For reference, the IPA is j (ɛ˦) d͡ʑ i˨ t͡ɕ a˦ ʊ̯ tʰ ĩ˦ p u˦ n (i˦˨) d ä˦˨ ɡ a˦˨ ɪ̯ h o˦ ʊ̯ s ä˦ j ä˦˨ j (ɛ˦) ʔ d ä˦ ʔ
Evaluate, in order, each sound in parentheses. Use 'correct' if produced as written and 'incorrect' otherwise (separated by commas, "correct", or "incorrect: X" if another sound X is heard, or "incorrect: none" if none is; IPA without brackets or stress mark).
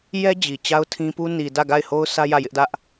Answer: correct, incorrect: i˨, incorrect: ɪ˦